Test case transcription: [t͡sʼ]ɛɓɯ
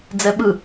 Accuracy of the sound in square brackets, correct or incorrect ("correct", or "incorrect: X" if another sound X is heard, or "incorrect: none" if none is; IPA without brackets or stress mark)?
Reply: incorrect: d͡z